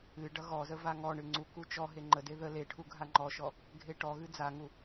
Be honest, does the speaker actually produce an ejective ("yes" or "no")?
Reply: no